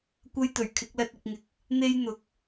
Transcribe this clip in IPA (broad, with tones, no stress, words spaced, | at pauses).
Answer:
kʷɐ˥jt̪ɵ˨˩ɥkʰɪ˨˥k̚lɐ˧t̚ ɪ˨k̚ŋɪ˨k̚ | n̪e˥jn̪ʊ˨˥k̚